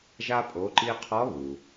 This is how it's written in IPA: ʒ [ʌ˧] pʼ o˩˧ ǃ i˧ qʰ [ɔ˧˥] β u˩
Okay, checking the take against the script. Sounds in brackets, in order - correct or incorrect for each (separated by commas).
incorrect, correct